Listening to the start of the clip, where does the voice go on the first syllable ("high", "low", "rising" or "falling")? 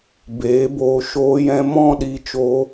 rising